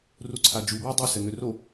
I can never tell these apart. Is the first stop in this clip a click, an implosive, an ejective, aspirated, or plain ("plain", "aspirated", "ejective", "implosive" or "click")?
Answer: click